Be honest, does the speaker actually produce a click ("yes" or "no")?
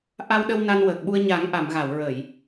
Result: no